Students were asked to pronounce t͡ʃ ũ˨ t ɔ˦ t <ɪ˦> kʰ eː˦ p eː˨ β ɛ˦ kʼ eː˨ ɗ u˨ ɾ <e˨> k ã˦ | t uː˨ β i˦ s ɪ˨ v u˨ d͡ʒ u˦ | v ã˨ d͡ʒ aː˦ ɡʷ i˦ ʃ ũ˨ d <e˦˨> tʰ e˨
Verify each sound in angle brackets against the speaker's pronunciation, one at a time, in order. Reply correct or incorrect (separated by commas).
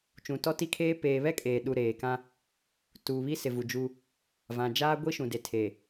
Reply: incorrect, incorrect, incorrect